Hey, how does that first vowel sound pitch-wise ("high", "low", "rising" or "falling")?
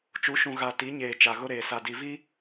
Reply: rising